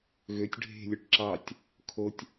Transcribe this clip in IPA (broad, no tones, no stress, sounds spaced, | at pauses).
ɣ ø tʲ ɖʱ e̤ lʲ ɵ ʈ ǁ ɑ tʲ | kʰ o tʲ